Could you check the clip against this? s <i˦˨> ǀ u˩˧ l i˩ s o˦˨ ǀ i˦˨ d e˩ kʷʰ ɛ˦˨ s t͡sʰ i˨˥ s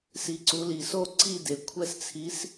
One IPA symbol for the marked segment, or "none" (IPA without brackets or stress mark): i˩˧